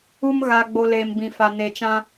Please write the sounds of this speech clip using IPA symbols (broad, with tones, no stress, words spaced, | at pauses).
u˦m ɣa˨ɡ͡bo˨ leː˨mbĩ˨fa˨ ne˨t͡ʃã˦